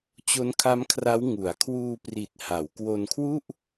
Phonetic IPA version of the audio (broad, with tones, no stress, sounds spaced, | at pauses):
t͡ɕ o˦˥ n kʰ a˦˥ m kʰ r a˦˥ w ŋ u˩˦ a̯ kʰ w uː˧ p r i˨˩ t̚ h a˩˦ w k w o˧ n kʰ w u˥˩ ʔ